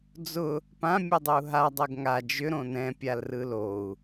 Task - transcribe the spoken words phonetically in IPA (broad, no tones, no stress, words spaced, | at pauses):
d͡zʊ | pã mʲɯdˤʏu̯ɦa dˤɛɡŋa d͡ʒʏ ɾõnɛ̃ pʲalrɯlou̯